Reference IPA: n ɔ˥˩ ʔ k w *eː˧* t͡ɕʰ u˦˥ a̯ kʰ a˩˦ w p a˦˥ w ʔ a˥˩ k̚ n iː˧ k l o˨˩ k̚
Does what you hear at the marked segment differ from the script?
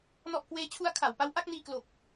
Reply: yes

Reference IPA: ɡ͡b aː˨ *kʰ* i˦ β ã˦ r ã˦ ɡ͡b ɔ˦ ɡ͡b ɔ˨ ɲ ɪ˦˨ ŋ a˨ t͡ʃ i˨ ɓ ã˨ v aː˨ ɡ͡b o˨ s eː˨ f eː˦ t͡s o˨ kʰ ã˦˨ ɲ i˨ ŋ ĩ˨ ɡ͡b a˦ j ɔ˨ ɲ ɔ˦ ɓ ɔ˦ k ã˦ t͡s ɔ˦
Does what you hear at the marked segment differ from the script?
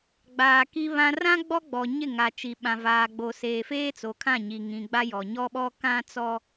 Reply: yes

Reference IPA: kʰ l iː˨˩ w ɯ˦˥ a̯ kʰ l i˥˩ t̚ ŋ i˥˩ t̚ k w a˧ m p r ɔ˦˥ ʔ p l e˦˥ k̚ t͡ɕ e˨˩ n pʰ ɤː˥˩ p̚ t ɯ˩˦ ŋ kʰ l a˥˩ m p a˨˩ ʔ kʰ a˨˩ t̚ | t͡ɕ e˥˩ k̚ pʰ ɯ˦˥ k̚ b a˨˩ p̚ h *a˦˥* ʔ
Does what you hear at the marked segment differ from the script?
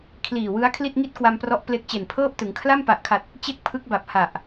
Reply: yes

